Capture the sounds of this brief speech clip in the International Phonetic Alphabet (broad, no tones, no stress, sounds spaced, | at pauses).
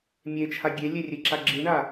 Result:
mʲ e t͡ʃʰ a ɡʲ e lʲ e rʲ e ǁ a ɡ͡ǁ i ɳ a